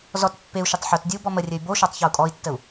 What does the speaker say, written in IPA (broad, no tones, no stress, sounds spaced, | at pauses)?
z ɔ t pː e u̯ ʃ e tˤ ħ o t dʲ ɘ u̯ b ɔ m ə rʲ ɘ y̯ b o ʃ ɔ tˤ ç ɔ u̯ kʼ ɔ i̯ tː ə u̯